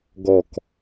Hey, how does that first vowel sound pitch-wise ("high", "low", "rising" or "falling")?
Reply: falling